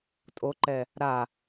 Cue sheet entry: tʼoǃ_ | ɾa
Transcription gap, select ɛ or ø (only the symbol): ɛ